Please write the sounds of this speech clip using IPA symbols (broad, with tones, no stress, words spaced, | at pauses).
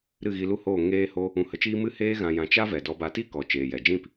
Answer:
ɾɨ˦˨ɣi˧lu˦hoː˦˨ ŋeː˦ho˦ | ũ˧hə˧t͡ʃiː˦ mɨ˦heː˦ ɣã˧jã˧ t͡ʃa˦ vɛ˨ dɔ˧ba˧ ti˦kɔ˨ t͡ʃeː˨jɛ˨d͡ʒĩ˦˨p